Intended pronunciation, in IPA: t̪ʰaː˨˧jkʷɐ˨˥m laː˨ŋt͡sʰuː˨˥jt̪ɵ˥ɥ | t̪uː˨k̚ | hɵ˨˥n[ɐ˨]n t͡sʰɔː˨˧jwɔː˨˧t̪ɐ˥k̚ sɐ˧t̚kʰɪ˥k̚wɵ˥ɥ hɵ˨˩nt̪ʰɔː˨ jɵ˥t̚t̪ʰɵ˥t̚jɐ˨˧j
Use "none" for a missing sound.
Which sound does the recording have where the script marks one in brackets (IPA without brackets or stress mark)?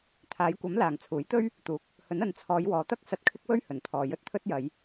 ɐ˨